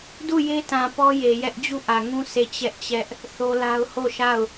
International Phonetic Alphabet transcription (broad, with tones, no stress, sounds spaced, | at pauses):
d u˦˨ j e˦ t ã˨ p ɔ˦ j e˨ j ɛ˦ ʔ d͡ʑ u˦˨ ʔ ä˨ ŋ ũ˦ sʰ e˦˨ t͡ɕ ɛ˦ ʔ t͡ɕ ɛ˦ ʔ | θ o˦ l a˦ ʊ̯ h o˦˨ ʃ a˦˨ ʊ̯